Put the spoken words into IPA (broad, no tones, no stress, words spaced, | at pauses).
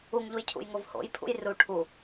uŋʎuj cʰṵjŋovho̰j pʰṵjru ʈʰu